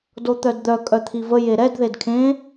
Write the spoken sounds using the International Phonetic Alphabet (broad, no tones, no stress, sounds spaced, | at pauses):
d o t̪ œ d d̪ œ kʼ œ t̪ʰ i v ə j e ɾ ɛ d ð e d kʰ ẽ